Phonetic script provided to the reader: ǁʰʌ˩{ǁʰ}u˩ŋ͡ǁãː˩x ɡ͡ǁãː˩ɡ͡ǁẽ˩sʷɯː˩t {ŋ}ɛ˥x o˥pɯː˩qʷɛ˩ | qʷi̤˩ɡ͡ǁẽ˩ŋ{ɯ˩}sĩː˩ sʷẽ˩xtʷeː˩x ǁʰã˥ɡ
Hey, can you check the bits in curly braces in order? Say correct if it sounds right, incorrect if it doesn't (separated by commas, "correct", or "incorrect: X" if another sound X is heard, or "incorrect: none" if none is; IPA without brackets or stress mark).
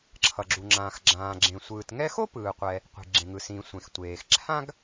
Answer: incorrect: ɡ͡ǁ, correct, correct